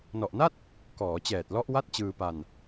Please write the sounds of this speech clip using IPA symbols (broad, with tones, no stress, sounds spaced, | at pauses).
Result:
n ɔ˨˩ ʔ n a˥˩ t̚ | k ɔː˩˦ t͡ɕ ɛː˨˩ t̚ l ɔ˦˥ ʔ w a˥˩ t̚ t͡ɕ ɯː˧ p a˧ n